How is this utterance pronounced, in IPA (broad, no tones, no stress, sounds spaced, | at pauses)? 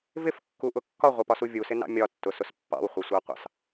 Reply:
v ɪ f kː u ʔ ʊ kː ɒ ʁʷ ə p ɒ s u vʲ u s ɪ n ɑ̰ mʲ ɒ tː ʊ s ʊ s pː ɑ̰ w χʷ ɛ sʷ ɑ qʷ ɑ̰ s